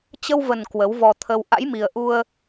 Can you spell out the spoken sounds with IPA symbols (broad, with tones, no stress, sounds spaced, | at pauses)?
t͡ɕ ə˧ w v ə˨˩ n k w ə˨˦ w v ɔ˧ t̪ʰ ə˧ w ʔ a̰˧˥ j m i˨˩ ə̯ ʔ u˧ ə̯